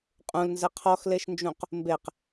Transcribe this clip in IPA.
qʼ ũ l n z ɘ qʰ ɔ x l e ʃ n d͡ʒ ũ q | m b e q

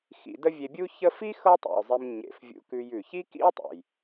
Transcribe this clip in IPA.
x ḭ˨ d ə˦ vʲ e˨ bʲ u˦ ç ə˥ f i˥ x ɤ˦ tˤ ḛ˩ ʊ̯ zˤ e˨ m ɲ ḛ˩ f vʲ ṵ˨ k ʉ˨ j ʉ˩ ç i˥ k ḭ˥ ʊ̯ tˤ ḛ˩ j

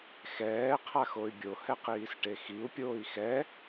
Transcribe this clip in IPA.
x ɛː qʰ a x o y̯ bʲ o h ɛ q iː s ʈ e x i u̯ pʲ oː i̯ x ɛ

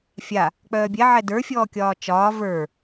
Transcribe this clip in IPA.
fʲ a | k͡p œː bʲ ɛ ʕ ɛ d ə˞ fʲ ɔː kʲ ɒː t͡ʃ ɒː v ə˞

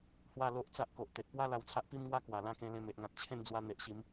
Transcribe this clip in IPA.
h w a˥˧ l o˦ ʔ t͡s a˦ ʔ k o˨ ʔ t̪ e˨ t̚ p w a˦ l a˧ w t͡sʰ a˦ ʔ p i˦ m ŋ w a˦ k w a˨˩ l ã˦ k ẽ˧ l ẽ˧ m e˨ ʔ ŋ ã˨ t̚ t͡ɕʰ ẽ˥˧ n d͡z w a˧ n̪ e˨ ʔ ɕ i˨˦ m

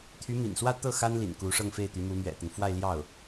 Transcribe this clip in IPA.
t̪ʰ y˧˥ m ḭ˨˩ n s w ä˥˧ t̪ ɤ˥˩ x a˥ n l ḭ˨˩ n k u˧˥ ʂ ɤ˥˧ ŋ f e˥˩ ɪ̯ t̪ y˧˥ m u˧˥ m ɥ ɛ̰˨˩ t̪ ə˦ n f w a˥˧ ɪ̯ l j ɑ˥˩ ʊ̯

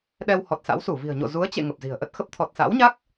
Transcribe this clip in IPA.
ɗ ɛ˧ w h ɔ˨˩ t̚ s a̰˧˥ w s u˧˩ v i̤˨˩ ə̯ ɲ o̰˧˨ z u˨˦ ə̯ t͡ɕ ḛ˧˨ ŋ ə˨˩ p̚ z i̤˨˩ ə̯ ʔ ə˦˥ t̚ x ə˦˥ p̚ t̪ʰ ɔ˨˩ t̚ s a̰˧˥ w ɲ a˦˥ k̚

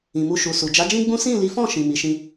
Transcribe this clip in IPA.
ĩ˨ m u˧ ʃ u˨ s u˨ d͡ʒ a˨˦ d͡ʒ ĩ˦ ɡ͡b ũ˦ s ĩ˦˨ l i˨˦ f ɔ̃˦˨ ʃ ĩ˨ m i˨˦ ʃ ĩ˦

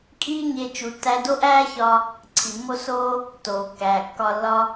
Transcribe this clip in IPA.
kʼ iː˦ ɲ e˧ t͡ʃ u˧ tː æ˦ d o˦ ʔ æː˦ ç ɒ˧ | ǀʰ i˨ mː o˧ s oː˦ | t oː˨ kː æː˨ kː ɒ˧ lː ɒ˦

